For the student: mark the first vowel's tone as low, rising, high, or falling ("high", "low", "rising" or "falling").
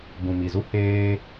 low